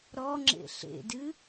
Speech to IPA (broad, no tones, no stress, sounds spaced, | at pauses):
ɾ ɔ ŋ͡ǁ ḛ ɬ ḛ d ɨ